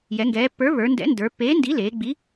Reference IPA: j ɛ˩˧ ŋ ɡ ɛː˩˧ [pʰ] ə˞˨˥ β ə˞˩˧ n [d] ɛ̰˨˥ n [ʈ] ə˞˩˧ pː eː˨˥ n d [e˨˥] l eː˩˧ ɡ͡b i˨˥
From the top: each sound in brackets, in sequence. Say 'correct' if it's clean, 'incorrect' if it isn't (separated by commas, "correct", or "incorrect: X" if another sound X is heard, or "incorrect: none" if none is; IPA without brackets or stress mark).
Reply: incorrect: pː, correct, incorrect: d, incorrect: i˨˥